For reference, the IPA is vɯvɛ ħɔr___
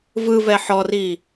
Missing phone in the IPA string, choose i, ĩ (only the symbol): i